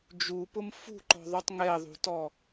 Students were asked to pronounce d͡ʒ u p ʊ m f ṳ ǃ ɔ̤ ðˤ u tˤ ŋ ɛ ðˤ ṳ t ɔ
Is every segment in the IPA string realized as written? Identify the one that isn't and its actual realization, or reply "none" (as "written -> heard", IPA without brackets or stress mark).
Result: none